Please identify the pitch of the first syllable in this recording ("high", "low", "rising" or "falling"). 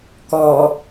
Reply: low